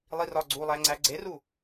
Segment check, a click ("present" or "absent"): present